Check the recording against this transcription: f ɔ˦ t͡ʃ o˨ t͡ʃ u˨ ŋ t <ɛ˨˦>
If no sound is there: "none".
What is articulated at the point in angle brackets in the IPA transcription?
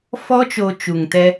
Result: ɛ˦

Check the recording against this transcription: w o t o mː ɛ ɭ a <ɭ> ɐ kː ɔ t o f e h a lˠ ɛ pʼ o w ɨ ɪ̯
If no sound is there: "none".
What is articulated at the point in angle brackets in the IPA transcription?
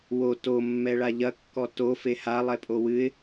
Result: ʎ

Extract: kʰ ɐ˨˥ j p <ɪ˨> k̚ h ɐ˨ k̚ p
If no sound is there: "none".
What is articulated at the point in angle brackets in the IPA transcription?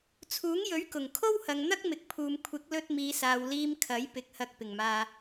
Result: ɪ˨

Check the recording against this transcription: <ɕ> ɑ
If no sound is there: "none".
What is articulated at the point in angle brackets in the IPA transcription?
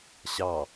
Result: ɕ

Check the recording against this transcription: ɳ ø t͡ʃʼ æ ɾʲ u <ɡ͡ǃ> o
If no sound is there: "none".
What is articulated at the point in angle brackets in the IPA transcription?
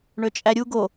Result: ɡ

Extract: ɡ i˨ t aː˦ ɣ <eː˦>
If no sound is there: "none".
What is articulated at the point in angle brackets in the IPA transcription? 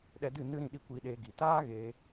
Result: eː˧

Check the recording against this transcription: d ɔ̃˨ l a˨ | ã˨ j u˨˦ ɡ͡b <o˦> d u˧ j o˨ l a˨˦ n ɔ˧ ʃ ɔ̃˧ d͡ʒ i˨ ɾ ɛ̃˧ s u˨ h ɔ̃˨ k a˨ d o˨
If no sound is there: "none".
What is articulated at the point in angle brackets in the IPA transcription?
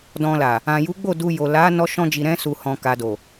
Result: o˦˨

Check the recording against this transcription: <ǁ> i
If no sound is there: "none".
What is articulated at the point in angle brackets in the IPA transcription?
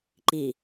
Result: ǃ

